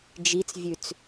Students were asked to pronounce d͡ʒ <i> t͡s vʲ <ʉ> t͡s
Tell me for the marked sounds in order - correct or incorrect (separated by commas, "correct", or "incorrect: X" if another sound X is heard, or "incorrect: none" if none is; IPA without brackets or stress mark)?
correct, correct